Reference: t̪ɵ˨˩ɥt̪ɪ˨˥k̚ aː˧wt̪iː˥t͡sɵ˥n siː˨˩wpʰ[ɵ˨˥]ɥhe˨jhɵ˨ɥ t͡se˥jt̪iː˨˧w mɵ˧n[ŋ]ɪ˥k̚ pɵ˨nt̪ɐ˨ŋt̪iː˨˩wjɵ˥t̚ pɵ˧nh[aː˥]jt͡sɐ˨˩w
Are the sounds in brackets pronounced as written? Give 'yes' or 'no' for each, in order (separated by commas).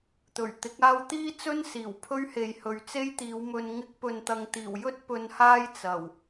no, yes, yes